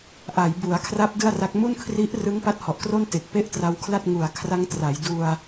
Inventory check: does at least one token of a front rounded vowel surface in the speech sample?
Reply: no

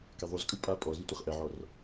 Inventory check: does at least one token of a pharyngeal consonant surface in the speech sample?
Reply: yes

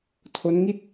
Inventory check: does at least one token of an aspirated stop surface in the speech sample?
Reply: yes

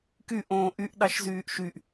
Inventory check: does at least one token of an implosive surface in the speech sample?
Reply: yes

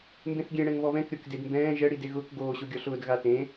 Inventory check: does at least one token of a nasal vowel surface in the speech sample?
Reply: yes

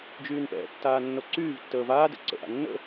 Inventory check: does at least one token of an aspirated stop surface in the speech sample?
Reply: no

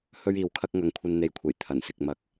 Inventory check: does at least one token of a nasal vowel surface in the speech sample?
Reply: no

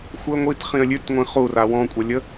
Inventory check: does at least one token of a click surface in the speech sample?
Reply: no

